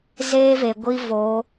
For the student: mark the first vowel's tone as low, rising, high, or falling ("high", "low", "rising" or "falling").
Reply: high